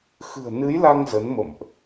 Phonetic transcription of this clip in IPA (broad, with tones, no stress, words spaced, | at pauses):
xɨ̤˨˩ə̯nɨ˨˦jla˧ŋ zə˨˦nmə̰˧˨mʔ